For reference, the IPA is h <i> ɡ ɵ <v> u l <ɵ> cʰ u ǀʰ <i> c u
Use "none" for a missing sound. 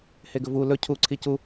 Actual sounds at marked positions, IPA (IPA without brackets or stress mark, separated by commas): e, v, ɵ, i